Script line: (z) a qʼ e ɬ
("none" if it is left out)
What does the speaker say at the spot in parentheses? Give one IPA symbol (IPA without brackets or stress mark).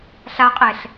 ɬ